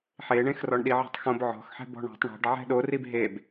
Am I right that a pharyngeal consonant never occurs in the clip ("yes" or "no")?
no